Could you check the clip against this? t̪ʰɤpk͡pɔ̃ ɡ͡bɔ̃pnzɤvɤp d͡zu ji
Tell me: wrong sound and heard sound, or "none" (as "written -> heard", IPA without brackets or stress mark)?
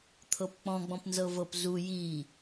d͡z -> z